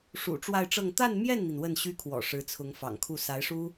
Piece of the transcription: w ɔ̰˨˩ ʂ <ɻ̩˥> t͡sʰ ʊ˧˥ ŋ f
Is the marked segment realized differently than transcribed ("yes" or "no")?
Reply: yes